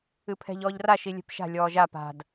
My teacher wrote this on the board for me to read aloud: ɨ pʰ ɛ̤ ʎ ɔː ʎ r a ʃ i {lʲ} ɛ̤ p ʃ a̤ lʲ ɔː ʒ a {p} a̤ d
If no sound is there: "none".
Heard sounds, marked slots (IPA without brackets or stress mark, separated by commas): lʲ, p